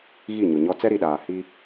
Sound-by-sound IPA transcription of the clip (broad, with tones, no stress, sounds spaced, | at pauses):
ɣ i˦˨ ɲ ʊ˨ ɲ ɔ˦ t͡s ɛ˦ ɾ i˨ ɗ aː˨ h i˦